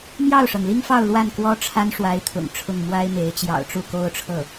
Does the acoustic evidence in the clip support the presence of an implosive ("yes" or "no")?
no